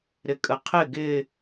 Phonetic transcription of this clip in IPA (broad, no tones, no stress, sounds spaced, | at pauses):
ɾ ɪ kʼ ə qʰ ɪ ɡ ɪ